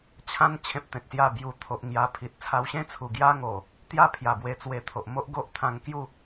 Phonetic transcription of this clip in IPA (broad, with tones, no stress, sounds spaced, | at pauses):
t͡ɕʰ ã˦ n t͡ɕʰ ẽ˦ p̚ t̪ ẽ˨ t̚ s j a˥˧ b j u˧ t̪ʰ o˨ ʔ ŋ j a˧ pʰ i˨ t̚ t͡sʰ a˧ w ɕ ẽ˥˧ t͡sʰ u˨˩ ɡ j a˦ ŋ o˨˩ | t̪ j a˥˧ pʰ j a˨˩ b w e˧ t͡s w e˧ t̪ʰ o˨ ʔ m o˦ ʔ ɡ o˦ ʔ t̪ʰ ã˧ ŋ k j u˥˧